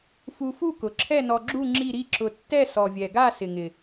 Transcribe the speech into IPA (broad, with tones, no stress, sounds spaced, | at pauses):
f u˧ f u˥˨ k ʊ˨˩ ǁʰ ɛ˥˨ n ɔ˧ ɡ͡ǁ u˥˨ ŋ͡ǁ i˥˨ ɾ i˥˨ ǁ ʊ˧ tː ɛ˥˨ s ɔ˨˩ vʲ ɛ˨˩ ɡ a˥˨ s ɪ˨˩ ŋ ɪ˨˩